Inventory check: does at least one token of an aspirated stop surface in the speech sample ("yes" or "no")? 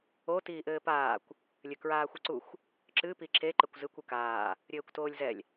no